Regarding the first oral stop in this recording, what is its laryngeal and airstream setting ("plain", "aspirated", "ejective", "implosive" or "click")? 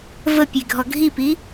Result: plain